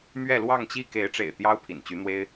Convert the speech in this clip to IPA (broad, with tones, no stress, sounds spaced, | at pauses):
m ɥ ɛ˥˧ l w ɑ˥˧ ŋ t͡ɕ i˥˩ k e˧˥ ɪ̯ ʈ͡ʂ ḛ˨˩ ɪ̯ t̪ j ɑ˥ ʊ̯ pʰ ḭ˨˩ n t͡ɕ y˧˥ n̪ w e˥ ɪ̯